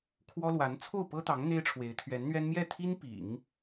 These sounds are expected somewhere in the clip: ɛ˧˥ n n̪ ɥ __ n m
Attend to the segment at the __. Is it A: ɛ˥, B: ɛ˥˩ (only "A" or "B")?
A